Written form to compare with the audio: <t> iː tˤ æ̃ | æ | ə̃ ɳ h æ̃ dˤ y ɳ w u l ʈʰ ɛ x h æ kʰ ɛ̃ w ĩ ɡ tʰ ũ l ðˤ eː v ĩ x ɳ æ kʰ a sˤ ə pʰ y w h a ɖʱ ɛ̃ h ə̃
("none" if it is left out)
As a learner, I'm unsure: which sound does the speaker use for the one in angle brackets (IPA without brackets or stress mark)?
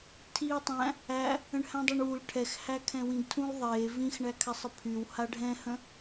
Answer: tʰ